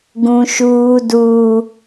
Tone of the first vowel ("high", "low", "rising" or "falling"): high